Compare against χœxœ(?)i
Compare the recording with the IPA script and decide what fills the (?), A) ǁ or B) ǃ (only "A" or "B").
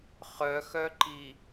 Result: B